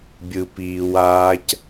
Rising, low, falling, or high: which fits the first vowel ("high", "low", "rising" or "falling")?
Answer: low